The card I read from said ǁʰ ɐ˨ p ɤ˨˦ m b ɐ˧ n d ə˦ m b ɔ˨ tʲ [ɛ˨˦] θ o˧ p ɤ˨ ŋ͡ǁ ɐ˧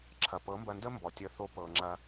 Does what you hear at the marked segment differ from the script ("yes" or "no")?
yes